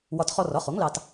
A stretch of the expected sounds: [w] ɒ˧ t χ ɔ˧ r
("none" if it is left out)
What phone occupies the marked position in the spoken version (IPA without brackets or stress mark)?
w